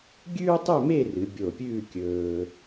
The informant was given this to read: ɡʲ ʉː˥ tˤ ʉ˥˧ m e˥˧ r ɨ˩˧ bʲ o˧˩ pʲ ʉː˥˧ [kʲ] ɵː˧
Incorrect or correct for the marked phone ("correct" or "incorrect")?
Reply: correct